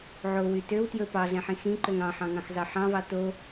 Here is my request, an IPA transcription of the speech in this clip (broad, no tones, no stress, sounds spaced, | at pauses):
ʕ o w y t ø w t j ɵ p ɑ ɮ ɛ̃ ħ ĩ x ĩ ǃ ø ŋ ɑ̃ ħ ɑ̃ ŋ ɑ̃ x z ɑ ħ ɑ̃ v ɑ t o